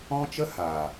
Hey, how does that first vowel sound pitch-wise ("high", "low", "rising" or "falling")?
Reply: high